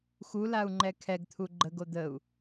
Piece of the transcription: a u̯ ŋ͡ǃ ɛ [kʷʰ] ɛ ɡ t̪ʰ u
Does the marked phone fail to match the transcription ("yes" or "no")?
yes